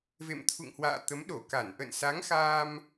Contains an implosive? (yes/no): yes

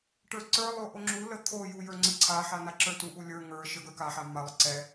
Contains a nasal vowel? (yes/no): no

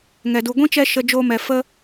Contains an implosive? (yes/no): no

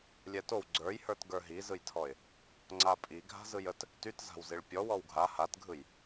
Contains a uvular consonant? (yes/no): no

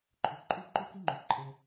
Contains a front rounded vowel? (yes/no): yes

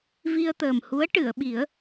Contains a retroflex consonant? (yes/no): yes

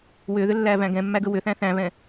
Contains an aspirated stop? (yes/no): no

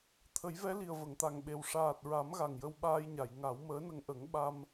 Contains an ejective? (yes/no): no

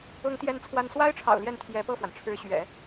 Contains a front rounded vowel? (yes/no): no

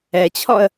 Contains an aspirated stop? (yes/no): yes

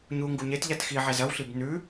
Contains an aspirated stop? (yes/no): no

